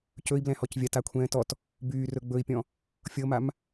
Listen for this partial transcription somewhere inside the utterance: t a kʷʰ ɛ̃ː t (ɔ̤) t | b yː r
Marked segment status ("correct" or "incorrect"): incorrect